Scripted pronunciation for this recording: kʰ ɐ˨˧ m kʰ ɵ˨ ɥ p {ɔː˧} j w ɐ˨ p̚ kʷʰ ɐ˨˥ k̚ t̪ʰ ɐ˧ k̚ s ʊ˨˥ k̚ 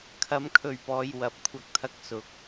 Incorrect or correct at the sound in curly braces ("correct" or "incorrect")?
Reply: incorrect